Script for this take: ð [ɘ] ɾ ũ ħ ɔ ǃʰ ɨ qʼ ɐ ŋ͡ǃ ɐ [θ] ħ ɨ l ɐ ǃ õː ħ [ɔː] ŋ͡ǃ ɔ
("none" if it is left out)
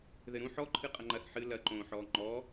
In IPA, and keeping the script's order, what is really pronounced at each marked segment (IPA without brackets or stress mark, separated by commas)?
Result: ɘ, θ, ɔː